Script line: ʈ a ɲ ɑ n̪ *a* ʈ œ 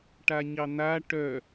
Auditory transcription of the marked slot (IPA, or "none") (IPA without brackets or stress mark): a